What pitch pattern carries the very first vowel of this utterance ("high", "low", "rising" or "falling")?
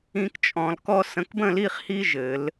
high